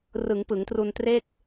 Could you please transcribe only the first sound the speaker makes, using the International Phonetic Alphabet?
r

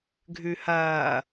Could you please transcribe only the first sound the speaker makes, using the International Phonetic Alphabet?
ɡʱ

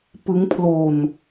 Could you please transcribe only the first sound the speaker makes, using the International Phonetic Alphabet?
p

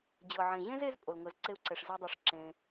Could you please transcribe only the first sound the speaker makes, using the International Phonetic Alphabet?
d͡ʑ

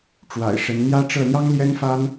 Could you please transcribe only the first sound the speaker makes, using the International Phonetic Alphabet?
ʈ͡ʂ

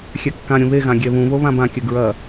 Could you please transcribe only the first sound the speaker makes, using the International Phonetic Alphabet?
xʲ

